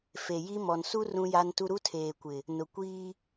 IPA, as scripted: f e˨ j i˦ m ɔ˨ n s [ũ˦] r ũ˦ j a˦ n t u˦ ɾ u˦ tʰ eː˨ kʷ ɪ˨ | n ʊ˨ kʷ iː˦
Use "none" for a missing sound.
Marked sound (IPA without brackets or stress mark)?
u˦